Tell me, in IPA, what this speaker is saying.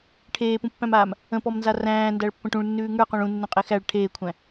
ʈʰ eː p ũ pː æ̃ m aː m | ə̃ p ɔ m n z a r æ̃ː n d æ ɭ pː ə̃ ʈ ũ ɭ nː ʉː ŋ ə˞ q õ ɭ ũ nː õ qʼ e x æ ɭ ʈʰ eː kʷʰ æ̃

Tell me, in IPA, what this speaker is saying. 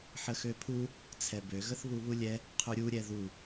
ħ ə x ø pʰ u | t͡sʰ ɛ b ø ɣ ə θ β u β u lʲ ɛ | qʰ u ɾʲ u ɾʲ ɛ ð u

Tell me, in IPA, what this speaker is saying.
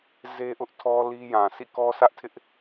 z e˦ ʔ ʊ˦ ʔ tʰ ɔ˦ l i˦ j ã˨ sʰ ḭ˦˨ k ɔ˦ sʰ ä˦ ʔ tʰ ɪ˦ ʔ

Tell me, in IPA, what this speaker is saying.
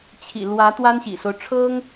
t͡ɕʰ ḭ˨˩ l w ä˧˥ t̪ w a˥ n ɕ ḭ˨˩ s o˦ ʊ̯ ʈ͡ʂʰ ɤ˥ ŋ

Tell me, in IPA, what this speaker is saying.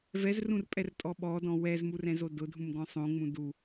v ɛ z r ũ r pʼ ɛ r tʼ ɔ ɓ ɔ d ɔ̃ w ɛ z m u r ɛ̃ z o d ʊ dʱ ũ m ɡ ɔ̃ sˤ õ ŋ͡m ũ d u

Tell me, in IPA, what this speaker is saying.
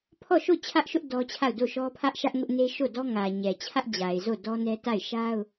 pʰ ɔ˦˨ ʃ o˦˨ t͡ɕʰ ä˦ ʔ ʃ ʊ˦ ʔ d ɔ˦ t͡ɕʰ a˦˨ ʊ̯ d o˦˨ ʃ ɔ˦ pʰ ä˦ ʔ ʃ ä˦ ʔ ŋ ʊ˦ ʔ n e˦ ʃ o˦˨ d ɔ˦ ŋ ä˨ ɲ ɛ˨ t͡ɕʰ ä˦ ʔ d͡ʑ a˨ ɪ̯ z o˦˨ d ɔ˦ n ɛ˦ t a˦˨ ɪ̯ ʃ a˦ ʊ̯

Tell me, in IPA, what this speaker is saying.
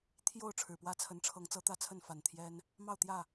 t̪ʰ j o˥˨ ʊ̯ ʈ͡ʂʰ ɻ̩˨˩ p w ä˥˨ t͡sʰ ə˨˦ n ʈ͡ʂʰ ɤ˨˦ ŋ t͡s ɤ˨˦ t̪ ä˥˨ t͡sʰ ə˥˨ n f a˨˩ n t̪ʰ j ɛ˦ n | m ɑ˥˨ ʊ̯ t̪ j ä˥˨

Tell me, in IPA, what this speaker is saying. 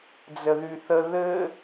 d͡z ə ð y θ ə ð ɘ

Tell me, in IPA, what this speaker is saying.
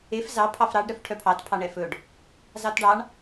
e f z ɑ pʰ ɑ f ɾ ɑ ɖ ɾ œ f ʈʰ œ pʰ ɑ t pʰ ɑ ɳ ɛ f ɵ ɖ | z ɑ t ɖ ɑ ɳ

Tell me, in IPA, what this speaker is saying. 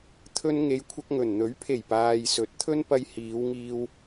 t̪ʰ ɵ˧ n ŋ e˨˧ j kʷʰ ɐ˧ k̚ ŋ ɵ˨˩ n n̪ ɵ˨˥ ɥ pʰ e˨˩ j p aː˨ j s ɵ˨˥ t̚ t̪ʰ ɵ˥ n p ɐ˧ j h iː˨˧ w ŋ iː˧ w

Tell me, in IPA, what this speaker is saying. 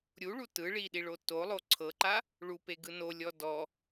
ɾʲ u ɭ u t ɯ ɭ i ɗ i ɭ o t o lˠ o ǀʰ ɤ ǃ a | ɭ u p e ɡ ɯ n o lʲ ɔ d ɔ

